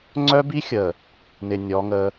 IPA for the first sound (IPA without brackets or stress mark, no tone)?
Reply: ŋ͡ǀ